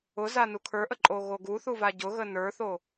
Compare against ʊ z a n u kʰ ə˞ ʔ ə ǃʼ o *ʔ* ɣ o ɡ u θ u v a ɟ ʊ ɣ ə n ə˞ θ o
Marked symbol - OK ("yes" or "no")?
no